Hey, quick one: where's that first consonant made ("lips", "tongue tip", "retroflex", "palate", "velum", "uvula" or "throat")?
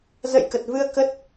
tongue tip